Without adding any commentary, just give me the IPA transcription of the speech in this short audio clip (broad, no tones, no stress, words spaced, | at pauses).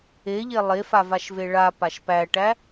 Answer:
eʎe lˠefavaʃve ɭa paʃpæʈæ